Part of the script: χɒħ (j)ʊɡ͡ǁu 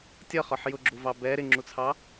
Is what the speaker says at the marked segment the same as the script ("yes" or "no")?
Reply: yes